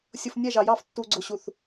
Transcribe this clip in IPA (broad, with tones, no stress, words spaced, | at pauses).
sʲʊ˨f nʲɛ˦˨ʒɑ˨jɑ˦˨f tːu˨ɡ͡ǀʊ˨ɕu˨θ